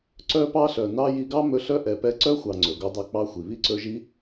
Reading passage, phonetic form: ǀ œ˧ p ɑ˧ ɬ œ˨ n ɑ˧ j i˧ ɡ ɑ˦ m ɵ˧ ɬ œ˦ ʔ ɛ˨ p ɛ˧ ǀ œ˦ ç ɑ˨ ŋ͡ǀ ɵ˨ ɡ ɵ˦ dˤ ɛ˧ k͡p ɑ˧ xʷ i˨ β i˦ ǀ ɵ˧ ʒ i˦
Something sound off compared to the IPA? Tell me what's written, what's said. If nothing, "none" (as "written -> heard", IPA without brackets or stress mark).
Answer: ç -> xʷ